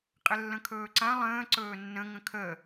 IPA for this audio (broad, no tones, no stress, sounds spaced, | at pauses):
qʼ ɪ lː ə̃ kʰ ɵː ǀ ã lˠ ə̃ː ǀ ɵː nː ə̃ ŋ ə̃ kʰ ə